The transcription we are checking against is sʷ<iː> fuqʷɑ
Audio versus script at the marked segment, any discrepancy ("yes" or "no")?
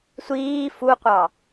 no